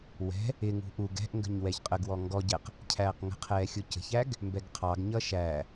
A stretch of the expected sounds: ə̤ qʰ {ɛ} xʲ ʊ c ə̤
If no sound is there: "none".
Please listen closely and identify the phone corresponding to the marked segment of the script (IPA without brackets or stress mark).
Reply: ɛː